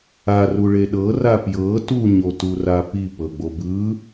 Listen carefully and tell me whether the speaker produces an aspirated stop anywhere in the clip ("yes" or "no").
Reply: no